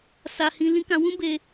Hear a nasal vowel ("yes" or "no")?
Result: yes